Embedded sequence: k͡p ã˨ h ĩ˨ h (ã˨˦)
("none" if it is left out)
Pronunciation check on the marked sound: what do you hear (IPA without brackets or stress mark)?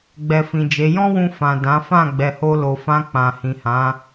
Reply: ã˨˦